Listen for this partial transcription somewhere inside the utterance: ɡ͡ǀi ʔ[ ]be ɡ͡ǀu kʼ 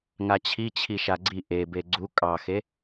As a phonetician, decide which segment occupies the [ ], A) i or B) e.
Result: B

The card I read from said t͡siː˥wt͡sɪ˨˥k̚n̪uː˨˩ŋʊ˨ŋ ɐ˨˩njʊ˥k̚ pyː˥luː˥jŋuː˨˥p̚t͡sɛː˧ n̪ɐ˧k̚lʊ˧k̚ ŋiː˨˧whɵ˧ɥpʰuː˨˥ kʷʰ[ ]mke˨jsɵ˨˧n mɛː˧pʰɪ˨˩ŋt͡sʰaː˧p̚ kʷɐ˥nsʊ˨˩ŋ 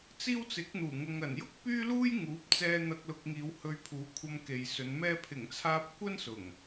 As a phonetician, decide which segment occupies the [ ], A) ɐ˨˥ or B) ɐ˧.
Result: B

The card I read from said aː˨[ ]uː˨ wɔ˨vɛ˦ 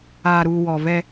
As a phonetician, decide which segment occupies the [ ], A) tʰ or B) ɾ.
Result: B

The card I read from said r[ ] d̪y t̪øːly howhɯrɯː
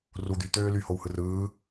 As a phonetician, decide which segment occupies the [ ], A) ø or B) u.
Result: B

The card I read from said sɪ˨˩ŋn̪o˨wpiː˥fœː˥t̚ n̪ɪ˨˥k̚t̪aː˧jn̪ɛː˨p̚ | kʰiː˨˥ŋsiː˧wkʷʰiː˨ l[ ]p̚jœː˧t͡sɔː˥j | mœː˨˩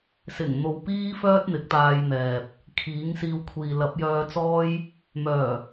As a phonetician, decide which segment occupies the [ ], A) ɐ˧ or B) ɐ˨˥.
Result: B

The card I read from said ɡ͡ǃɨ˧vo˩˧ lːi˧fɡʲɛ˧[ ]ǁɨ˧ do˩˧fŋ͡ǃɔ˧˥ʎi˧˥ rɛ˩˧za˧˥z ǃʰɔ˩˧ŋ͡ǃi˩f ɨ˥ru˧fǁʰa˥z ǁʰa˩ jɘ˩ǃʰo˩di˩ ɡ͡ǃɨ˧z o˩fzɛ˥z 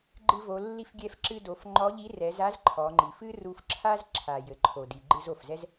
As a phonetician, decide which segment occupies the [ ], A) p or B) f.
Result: B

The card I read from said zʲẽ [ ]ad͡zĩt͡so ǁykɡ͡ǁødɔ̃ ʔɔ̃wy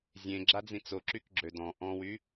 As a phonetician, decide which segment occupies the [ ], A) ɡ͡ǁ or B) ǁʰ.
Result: A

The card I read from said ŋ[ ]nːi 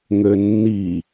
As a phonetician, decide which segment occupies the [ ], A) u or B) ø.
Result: B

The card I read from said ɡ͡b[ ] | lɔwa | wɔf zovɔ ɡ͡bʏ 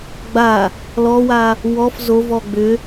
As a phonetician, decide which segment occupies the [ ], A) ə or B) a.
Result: B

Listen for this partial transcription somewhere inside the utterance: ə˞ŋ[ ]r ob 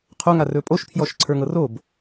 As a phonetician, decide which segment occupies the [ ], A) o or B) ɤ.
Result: B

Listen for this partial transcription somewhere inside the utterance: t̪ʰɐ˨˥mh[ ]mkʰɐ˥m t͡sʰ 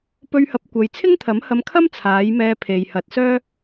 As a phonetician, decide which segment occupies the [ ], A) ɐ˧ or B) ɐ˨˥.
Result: A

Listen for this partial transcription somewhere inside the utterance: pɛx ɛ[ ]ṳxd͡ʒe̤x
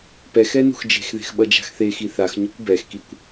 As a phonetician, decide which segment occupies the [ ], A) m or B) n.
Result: B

